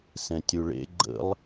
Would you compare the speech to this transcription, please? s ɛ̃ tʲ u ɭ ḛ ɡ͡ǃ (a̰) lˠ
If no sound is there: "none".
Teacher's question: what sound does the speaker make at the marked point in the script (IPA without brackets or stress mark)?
ə̰